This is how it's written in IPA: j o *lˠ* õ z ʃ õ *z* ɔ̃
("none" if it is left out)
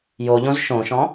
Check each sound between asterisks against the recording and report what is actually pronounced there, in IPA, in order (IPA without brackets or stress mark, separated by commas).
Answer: ʎ, ʃ